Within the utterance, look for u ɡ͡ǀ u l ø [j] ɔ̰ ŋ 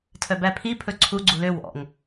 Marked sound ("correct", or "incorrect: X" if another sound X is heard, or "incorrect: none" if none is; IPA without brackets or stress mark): incorrect: w